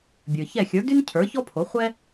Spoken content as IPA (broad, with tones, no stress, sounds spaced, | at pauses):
bʲ ə˞˩ ç ɛ˥˩ xʲ ə˞˩˥ d y˥ n cʰ ə˞˩˥ ç ɔ˥ pʰ o˩˥ χʷ ɛ˥